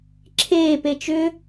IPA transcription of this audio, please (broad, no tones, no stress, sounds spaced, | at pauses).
ǁʰ eː p e t͡ʃ ʏ